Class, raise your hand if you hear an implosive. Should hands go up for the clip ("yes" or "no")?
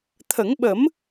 yes